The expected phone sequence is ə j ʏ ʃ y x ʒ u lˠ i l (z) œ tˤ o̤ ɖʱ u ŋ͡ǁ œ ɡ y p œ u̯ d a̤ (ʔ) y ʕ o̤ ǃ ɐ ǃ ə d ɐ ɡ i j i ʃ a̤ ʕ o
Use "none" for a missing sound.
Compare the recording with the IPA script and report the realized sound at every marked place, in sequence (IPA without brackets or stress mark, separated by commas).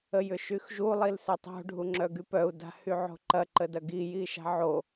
s, h